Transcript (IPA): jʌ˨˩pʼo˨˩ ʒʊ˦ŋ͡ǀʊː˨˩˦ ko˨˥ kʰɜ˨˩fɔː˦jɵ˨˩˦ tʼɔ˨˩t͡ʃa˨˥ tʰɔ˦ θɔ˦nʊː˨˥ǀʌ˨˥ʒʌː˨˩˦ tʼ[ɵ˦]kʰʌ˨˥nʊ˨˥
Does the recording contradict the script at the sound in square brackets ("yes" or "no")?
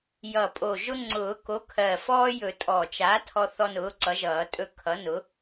no